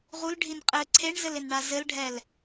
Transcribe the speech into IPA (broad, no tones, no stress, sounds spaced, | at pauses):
ʁ u l ɖʱ i n qʼ ɘ ǀʰ e ɳ z ɘ l ɪ n ɳ a z ɘ l ɖʱ ɛ l